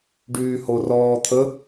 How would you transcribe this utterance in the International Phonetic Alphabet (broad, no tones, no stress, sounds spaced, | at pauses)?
ɖ yː h o r ɔː t̪ʰ ə